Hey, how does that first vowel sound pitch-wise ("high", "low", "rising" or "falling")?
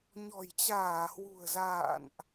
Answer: low